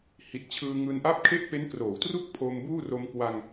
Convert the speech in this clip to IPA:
h i˨˩ t̚ t͡ɕʰ ɯː˧ ŋ ɯː˧ n ʔ a˥˩ p̚ kʰ e˥˩ ʔ p e˦˥ n k r oː˩˦ w t r u˥˩ k̚ pʰ o˧ m b uː˥˩ r o˧ m k w a˧ ŋ

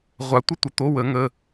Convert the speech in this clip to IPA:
ʁʷ a˨˩˦ tʷ ə˧˥˧ tʷ ə˩˧˩ t̪ o˧˥˧ w ə˨˩˦ ŋ ə˩˧˩

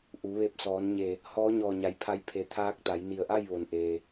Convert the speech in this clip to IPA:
ʔ u˩˧ ʋ e˧ p̚ s ɔː˩˧ n ɲ e˧˩ | h ɔː˧˥ ɲ ɔː˧˩ ɲ a˩ j pʰ a˧ j pʰ e˧˩ t̪ʰ aː˧˥ k̚ t̪ a˩˧ j n i˧˩ ə̯ ʔ a˥˨ j ʋ o˩ n ʔ eː˩

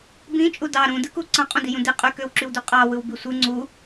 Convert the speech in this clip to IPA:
b ĩ t͡ʃʼ u d ɑ ɾ ũ d ɯ k u ǀ ɑ̃ qʼ ũ d i j ũ d i qʼ y k ø w ǁ y w d y qʼ ɑ w ɯ w b i sʷ ɯ ŋ͡ǀ u

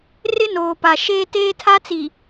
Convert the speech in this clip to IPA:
r ɪ˦ n oː˨ p a˨ ʃ eː˦ t eː˦ tʰ a˦ t͡s i˨

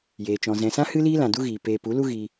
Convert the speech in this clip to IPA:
j eː˨ t͡ʃ ɔ̃˨ z ɛ̃˨ s ã˦ h ɨ˦ l iː˦ l ã˨ d u˦ ɣ iː˨ p eː˧ p u˨˦ l u˦ ɣ iː˧

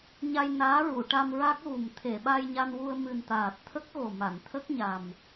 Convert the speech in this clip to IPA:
ɲ a˧ j n aː˧˥ ɹ u˨˩˨ ʈ a˧ m ɹ a˦˥ k̚ ɣ u˨˩ m t̪ʰ e˨˩˨ ɓ a˧ j ɲ a˧ n w u˧ ə̯ m ɨ˨˩ n t̪ aː˨˩ t̚ t̪ʰ ə˦˥ k̚ ɣ o˨˩ m a˨˩˨ n t̪ʰ ə˦˥ k̚ ɲ a˨˩ m

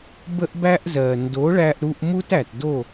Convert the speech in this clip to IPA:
b ə˦ ʔ b æ˦ ʔ z ɜ˨ n d o˨˦ ɭ æ˧ ʔ ɾ u˧ ʔ m u˦ t æ˨ t d o˦˨

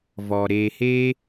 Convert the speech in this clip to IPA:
v ɔ˧ ɾ eː˧ h eː˦

